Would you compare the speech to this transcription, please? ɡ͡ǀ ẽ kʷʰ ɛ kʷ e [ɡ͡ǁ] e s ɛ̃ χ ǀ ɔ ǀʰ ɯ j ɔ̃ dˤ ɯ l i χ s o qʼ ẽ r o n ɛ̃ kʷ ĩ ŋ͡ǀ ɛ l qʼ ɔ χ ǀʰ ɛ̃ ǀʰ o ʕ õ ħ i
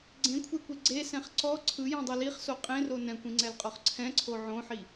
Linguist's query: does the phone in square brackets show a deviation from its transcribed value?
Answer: yes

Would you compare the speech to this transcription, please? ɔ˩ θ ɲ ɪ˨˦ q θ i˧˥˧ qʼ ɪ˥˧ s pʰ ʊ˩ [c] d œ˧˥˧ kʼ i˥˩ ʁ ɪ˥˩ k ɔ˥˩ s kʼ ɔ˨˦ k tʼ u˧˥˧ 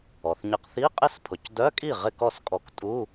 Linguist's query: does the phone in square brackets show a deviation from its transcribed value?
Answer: no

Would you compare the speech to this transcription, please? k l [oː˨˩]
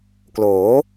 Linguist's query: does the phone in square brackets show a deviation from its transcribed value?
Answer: yes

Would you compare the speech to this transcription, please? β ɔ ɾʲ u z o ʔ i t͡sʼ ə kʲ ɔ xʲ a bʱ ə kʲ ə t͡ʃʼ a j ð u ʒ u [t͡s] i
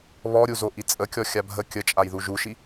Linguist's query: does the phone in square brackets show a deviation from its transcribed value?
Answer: yes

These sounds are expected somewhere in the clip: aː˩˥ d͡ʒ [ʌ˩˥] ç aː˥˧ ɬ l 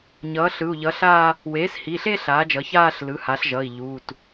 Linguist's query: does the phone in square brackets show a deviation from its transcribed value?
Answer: no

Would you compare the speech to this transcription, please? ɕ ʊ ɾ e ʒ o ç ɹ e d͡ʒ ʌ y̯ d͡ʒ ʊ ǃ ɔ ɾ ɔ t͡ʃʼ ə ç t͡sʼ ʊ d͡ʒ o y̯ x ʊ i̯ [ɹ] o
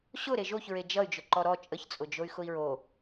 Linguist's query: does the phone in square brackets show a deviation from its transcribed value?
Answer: no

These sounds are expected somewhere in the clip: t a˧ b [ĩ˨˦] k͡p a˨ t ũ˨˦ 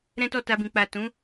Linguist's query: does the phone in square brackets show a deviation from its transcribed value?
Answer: yes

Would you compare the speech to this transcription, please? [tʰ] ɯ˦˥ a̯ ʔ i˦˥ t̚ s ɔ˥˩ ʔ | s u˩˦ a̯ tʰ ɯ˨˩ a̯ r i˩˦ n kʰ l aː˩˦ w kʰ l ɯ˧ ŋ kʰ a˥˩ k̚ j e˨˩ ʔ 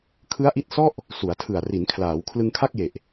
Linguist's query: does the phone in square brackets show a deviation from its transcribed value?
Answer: yes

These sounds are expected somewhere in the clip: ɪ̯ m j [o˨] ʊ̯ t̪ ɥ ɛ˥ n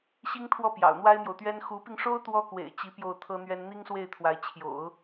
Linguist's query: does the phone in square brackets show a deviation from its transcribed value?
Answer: no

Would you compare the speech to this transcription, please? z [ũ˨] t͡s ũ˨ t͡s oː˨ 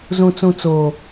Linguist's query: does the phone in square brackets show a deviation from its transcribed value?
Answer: no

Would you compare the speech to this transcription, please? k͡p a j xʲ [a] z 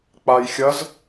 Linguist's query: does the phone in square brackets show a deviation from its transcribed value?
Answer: yes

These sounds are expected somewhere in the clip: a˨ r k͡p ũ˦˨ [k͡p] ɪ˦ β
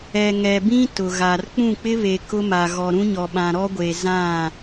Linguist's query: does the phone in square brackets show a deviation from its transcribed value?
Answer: no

